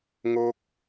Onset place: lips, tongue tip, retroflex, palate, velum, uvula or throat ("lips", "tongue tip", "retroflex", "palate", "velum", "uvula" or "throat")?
velum